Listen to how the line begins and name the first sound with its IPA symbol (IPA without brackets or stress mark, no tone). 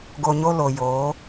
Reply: ɡ